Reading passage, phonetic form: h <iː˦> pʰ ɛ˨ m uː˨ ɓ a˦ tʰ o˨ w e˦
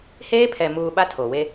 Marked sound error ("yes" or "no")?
yes